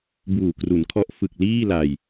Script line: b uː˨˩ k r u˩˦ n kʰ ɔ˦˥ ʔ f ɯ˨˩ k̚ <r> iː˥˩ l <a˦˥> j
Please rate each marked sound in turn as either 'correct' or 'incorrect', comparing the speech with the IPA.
incorrect, incorrect

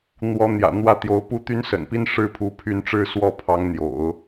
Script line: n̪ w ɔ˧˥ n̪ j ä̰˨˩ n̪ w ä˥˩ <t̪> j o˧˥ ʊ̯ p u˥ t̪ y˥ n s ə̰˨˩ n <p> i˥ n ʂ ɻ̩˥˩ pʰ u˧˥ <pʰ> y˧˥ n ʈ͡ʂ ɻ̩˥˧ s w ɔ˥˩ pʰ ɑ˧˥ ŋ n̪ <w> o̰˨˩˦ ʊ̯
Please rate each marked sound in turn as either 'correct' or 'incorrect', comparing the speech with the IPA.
correct, correct, correct, incorrect

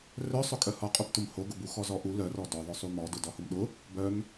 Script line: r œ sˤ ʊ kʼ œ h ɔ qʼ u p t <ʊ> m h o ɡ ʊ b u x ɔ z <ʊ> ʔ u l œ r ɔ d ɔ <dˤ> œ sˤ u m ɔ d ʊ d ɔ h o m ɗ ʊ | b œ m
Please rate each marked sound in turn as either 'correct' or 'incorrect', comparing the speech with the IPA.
correct, incorrect, incorrect

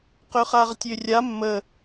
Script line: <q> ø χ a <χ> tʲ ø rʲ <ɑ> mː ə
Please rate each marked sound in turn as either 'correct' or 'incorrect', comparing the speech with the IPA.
correct, incorrect, incorrect

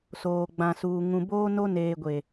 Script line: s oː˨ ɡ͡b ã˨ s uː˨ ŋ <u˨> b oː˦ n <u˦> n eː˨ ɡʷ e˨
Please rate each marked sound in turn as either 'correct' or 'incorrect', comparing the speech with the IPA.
incorrect, incorrect

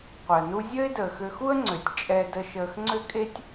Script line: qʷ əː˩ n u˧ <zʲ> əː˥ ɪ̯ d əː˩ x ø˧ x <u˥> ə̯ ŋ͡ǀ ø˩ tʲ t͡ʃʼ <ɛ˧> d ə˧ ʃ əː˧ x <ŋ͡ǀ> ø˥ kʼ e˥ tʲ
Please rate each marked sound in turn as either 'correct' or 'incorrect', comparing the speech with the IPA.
correct, correct, correct, correct

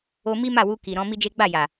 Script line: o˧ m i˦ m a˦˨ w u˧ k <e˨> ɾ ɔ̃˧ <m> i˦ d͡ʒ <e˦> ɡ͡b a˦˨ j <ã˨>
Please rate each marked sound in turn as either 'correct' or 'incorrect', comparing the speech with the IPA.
incorrect, correct, correct, incorrect

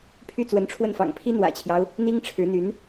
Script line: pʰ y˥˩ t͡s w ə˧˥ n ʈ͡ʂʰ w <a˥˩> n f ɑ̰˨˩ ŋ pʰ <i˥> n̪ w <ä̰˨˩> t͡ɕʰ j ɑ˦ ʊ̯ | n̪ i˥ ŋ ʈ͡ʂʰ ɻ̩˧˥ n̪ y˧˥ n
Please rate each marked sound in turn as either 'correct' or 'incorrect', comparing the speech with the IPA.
incorrect, correct, correct

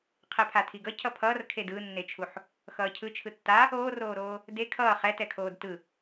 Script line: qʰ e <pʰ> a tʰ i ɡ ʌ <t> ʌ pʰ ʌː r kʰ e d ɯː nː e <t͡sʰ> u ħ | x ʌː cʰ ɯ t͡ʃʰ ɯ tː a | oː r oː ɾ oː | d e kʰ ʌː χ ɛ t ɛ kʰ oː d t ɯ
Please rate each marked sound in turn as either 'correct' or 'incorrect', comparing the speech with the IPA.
correct, incorrect, incorrect

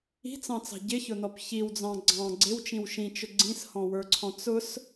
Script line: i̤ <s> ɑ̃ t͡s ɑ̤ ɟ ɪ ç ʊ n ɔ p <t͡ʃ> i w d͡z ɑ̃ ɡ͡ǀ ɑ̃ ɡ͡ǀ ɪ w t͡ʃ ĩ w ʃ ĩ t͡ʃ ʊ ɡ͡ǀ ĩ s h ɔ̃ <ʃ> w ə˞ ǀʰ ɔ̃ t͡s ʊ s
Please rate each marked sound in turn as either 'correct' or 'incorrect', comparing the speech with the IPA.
incorrect, incorrect, incorrect

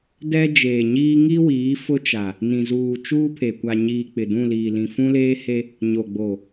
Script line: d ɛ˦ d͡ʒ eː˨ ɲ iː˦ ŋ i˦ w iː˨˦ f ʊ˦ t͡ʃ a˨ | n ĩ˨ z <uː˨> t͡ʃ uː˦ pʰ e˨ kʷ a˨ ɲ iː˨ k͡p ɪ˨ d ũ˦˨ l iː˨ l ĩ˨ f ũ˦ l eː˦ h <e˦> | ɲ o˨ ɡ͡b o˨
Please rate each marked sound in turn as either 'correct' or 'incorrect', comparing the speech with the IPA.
correct, correct

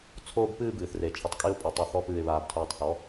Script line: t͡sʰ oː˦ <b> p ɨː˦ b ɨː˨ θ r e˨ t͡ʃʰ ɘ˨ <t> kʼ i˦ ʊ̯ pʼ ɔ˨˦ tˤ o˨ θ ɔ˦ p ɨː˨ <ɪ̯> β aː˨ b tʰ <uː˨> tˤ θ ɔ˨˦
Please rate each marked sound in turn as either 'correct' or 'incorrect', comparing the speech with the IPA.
correct, incorrect, correct, correct

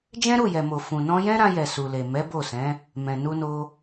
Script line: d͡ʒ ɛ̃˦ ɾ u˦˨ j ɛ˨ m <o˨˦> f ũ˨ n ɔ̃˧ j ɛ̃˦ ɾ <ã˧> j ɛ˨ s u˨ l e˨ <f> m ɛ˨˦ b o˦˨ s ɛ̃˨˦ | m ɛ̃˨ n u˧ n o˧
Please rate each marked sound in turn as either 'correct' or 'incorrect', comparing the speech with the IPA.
incorrect, correct, incorrect

